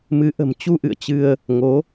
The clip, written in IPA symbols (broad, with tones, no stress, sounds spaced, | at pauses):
m ɨ˨˦ ʔ ə̤˨˩ m t͡ɕ u˧ ʔ ɨ̰˧˨ ə̯ t͡ɕ ɨ˧ ə̯ | ŋ o˨˦